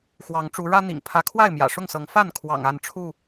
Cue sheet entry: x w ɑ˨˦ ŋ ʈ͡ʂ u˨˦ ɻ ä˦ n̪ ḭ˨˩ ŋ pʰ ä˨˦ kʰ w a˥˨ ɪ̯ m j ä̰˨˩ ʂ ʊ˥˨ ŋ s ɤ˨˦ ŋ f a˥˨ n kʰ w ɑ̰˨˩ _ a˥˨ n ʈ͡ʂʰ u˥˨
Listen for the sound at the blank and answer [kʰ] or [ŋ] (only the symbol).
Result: ŋ